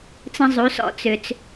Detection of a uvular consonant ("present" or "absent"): absent